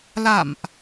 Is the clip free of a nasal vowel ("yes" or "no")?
yes